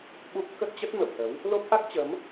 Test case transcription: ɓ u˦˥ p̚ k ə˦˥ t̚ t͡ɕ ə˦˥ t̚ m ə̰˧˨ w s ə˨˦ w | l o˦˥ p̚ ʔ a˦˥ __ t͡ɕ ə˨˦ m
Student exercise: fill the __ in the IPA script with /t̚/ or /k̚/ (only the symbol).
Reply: k̚